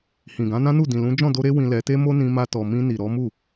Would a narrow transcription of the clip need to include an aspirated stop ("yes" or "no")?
no